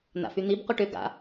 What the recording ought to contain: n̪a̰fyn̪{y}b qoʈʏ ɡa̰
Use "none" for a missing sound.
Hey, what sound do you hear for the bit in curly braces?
i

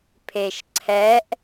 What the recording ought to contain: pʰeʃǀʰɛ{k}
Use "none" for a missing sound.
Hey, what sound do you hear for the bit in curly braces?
ʔ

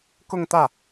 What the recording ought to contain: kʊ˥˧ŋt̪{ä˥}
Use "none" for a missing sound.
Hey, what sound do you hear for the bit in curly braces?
ä˥˩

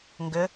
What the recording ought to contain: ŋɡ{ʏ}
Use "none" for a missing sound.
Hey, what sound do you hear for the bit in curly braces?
ʏ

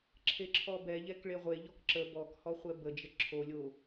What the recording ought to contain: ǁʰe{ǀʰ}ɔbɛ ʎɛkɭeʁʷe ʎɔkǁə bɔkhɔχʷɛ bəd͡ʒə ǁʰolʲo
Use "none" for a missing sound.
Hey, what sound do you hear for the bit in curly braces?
ǁʰ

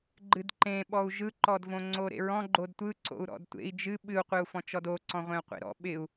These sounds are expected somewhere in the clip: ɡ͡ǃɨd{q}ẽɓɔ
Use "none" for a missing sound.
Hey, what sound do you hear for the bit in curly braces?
ǃ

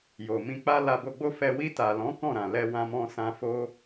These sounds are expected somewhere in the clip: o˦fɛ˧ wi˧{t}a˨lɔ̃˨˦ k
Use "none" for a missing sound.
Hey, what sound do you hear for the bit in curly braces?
t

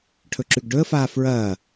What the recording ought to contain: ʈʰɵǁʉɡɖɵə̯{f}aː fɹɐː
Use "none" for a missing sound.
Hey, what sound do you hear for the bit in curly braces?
f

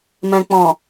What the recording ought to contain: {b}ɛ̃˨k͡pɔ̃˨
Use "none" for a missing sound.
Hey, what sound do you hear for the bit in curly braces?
m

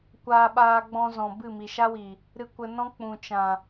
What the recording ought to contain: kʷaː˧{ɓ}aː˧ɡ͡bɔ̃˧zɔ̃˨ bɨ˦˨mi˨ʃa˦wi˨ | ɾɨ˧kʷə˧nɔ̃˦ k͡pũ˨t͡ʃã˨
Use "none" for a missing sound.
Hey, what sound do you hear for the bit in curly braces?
ɓ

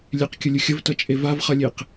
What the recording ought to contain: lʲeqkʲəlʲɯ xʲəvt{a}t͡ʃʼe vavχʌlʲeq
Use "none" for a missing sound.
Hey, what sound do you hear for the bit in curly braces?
ʌ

